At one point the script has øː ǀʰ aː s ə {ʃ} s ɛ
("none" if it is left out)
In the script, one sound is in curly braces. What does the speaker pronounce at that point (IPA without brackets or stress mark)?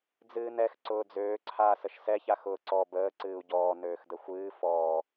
ʃ